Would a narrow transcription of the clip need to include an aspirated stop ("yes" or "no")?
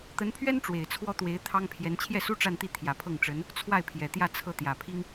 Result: yes